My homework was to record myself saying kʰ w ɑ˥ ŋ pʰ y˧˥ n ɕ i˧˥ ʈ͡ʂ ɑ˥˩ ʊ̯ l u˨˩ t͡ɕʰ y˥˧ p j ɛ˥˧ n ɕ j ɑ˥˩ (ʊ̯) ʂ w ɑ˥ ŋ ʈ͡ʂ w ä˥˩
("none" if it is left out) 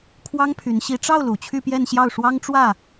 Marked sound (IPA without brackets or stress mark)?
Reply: ʊ̯